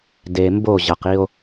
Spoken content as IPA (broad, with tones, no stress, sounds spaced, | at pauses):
d e˨ m b o˦˨ ʑ ʌ˨ q i˦ o̯